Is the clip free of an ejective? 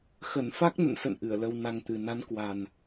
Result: yes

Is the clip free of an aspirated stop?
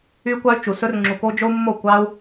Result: yes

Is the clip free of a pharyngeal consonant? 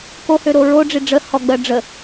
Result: yes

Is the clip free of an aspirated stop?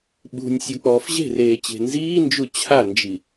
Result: no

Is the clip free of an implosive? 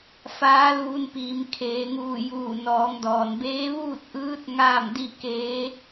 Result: yes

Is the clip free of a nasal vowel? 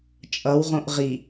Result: no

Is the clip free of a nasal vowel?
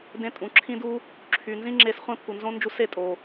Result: no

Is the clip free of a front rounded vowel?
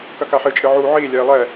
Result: yes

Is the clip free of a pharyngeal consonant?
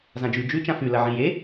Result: no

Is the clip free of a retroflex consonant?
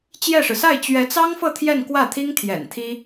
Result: no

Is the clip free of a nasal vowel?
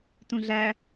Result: no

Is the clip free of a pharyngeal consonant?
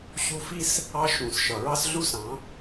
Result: yes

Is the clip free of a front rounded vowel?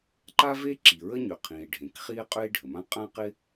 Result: no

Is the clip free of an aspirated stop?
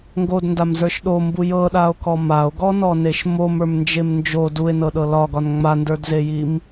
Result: yes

